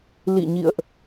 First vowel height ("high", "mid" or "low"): high